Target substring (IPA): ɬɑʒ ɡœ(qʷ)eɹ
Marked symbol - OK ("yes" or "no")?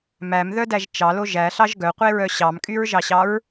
yes